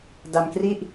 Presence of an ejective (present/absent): absent